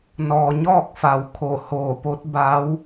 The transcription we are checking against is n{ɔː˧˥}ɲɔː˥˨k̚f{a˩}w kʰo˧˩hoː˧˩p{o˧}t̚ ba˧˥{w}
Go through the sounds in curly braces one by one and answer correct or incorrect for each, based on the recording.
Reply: incorrect: ɔː˩, correct, incorrect: o˧˥, correct

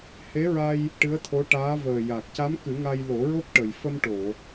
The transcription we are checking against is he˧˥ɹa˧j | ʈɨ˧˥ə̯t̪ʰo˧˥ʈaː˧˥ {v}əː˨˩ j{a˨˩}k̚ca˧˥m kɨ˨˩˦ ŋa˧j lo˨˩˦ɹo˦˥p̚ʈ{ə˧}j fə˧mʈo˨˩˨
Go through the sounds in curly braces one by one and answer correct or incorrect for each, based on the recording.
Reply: correct, correct, incorrect: ə˨˩

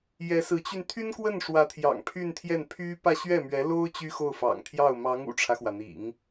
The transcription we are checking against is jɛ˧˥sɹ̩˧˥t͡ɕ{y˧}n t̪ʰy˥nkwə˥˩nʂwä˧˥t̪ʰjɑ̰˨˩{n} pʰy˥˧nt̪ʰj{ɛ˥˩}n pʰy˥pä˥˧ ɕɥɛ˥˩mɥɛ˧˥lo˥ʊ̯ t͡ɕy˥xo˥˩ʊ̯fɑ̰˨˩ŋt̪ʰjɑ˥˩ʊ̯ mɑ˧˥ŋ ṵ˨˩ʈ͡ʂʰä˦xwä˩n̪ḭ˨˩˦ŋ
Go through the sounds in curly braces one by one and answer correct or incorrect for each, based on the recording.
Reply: correct, incorrect: ŋ, correct

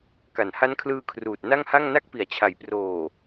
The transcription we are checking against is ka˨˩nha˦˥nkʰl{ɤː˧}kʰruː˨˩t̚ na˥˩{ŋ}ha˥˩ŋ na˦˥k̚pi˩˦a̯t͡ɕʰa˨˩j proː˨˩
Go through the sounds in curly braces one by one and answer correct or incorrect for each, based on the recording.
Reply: incorrect: ɯː˧, correct

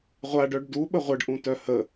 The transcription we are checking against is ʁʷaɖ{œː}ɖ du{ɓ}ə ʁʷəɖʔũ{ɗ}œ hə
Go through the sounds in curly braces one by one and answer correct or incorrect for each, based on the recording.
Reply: incorrect: œ, correct, incorrect: t

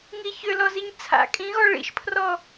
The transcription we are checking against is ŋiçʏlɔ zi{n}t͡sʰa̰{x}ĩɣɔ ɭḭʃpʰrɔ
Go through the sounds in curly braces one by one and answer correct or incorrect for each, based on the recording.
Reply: incorrect: ɲ, incorrect: kʼ

